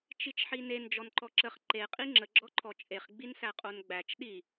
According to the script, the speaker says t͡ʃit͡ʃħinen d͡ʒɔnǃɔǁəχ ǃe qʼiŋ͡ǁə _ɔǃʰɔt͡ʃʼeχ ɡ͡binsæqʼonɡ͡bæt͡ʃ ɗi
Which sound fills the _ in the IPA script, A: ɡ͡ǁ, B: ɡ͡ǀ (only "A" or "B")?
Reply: A